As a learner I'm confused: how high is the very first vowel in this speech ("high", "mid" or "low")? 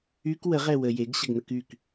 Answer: high